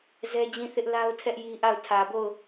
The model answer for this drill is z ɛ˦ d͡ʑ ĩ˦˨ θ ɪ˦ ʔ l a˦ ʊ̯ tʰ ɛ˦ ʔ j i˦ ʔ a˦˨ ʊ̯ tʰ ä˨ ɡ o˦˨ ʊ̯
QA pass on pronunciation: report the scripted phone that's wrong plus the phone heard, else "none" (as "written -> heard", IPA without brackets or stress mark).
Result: ɡ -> b